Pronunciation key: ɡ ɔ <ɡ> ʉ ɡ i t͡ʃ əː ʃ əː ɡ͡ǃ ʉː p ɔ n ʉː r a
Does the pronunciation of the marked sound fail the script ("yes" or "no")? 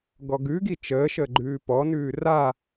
no